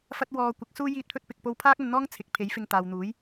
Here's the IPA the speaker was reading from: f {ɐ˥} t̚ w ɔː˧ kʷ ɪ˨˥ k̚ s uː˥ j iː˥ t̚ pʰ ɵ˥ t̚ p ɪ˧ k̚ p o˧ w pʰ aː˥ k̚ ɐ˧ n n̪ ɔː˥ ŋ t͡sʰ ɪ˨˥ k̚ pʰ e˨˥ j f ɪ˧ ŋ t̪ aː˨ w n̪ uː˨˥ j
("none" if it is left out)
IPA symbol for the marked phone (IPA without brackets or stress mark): ɐ˥